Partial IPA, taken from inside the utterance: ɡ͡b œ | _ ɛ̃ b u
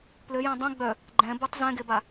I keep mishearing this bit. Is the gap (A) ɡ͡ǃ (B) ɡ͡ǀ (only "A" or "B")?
A